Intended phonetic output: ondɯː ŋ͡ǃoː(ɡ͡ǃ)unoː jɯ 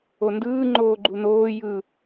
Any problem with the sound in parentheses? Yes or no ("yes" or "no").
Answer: no